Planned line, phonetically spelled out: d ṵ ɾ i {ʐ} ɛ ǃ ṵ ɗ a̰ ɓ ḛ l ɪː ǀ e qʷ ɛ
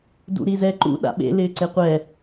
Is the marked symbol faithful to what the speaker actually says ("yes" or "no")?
no